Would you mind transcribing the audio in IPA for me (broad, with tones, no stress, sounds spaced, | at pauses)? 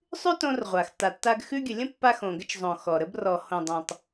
sˤ ʉ˥ t õ˧ r ʁʷ a˩ x t a˩ tː a˧ ɡ x ʉ˧ ɡʲ ə˩ lʲ ə̃˥ pː a˧ x õ˩ ɡ ə˧ t͡ʃ zˤ õ˩ x ɔ˩ ɾ ə˧ b r ɔ˩ h õ˩ dˤ õ˩ tˤ